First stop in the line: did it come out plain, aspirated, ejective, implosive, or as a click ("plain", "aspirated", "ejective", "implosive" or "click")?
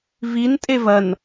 ejective